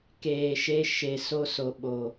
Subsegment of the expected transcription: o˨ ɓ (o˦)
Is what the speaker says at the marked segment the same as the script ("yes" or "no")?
no